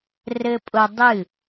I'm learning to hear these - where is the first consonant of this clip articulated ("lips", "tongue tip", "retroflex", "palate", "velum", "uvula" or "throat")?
tongue tip